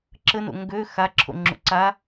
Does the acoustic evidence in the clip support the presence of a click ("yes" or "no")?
yes